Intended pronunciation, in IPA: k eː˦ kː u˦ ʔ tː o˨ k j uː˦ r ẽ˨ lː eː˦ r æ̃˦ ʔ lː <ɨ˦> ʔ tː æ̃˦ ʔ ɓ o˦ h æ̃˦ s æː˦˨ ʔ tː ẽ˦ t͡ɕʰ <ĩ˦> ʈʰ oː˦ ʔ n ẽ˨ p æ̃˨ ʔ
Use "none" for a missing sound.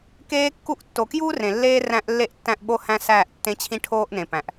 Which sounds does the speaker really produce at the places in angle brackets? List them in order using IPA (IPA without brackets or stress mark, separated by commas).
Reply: e˦, ĩ˦